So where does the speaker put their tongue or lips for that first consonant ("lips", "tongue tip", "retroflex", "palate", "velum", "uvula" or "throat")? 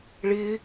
retroflex